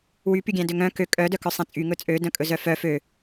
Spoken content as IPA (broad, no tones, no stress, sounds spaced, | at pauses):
w y p y ɡʲ æ̃ d ø ŋ œ̃ k ø kʼ œ d œ k œ sˤ æ̃ t͡sʼ y ŋ ɵ t͡sʼ ø d œ̃ kʼ ɵ z œ f œ f ø